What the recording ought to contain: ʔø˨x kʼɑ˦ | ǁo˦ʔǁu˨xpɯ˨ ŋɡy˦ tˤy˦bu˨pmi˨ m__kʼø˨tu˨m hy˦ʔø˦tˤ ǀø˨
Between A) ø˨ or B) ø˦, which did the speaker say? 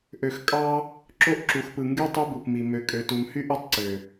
A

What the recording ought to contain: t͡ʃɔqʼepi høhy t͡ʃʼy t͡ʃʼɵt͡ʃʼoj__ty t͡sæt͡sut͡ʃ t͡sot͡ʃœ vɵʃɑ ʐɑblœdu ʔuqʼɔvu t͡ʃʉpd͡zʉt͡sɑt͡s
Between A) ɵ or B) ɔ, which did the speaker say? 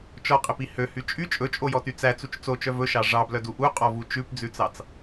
B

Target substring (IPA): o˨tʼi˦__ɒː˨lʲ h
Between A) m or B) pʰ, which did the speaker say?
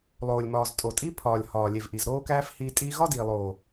B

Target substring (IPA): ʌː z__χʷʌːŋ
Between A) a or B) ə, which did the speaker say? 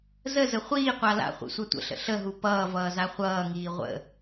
A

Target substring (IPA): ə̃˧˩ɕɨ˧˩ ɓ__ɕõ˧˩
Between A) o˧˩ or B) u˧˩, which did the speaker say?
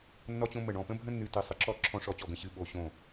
A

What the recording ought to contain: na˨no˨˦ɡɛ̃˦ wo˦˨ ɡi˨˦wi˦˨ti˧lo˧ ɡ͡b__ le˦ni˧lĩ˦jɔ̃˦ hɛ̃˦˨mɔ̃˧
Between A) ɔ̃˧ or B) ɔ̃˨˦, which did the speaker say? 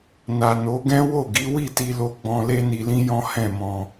A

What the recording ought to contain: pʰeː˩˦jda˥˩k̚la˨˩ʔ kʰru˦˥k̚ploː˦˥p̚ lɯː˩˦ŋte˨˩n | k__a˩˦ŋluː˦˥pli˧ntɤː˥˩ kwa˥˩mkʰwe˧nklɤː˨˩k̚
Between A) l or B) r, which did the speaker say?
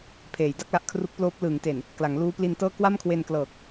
A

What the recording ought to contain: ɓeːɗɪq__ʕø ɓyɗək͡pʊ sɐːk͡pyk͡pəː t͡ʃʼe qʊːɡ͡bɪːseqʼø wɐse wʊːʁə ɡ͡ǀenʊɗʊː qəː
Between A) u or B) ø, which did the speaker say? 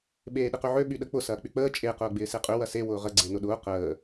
B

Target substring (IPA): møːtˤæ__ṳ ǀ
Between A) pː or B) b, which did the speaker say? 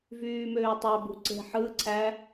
B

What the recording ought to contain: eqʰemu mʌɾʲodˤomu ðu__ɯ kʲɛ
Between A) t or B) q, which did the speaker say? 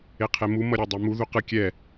B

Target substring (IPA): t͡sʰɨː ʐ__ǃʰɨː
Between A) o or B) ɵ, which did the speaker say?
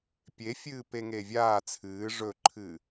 B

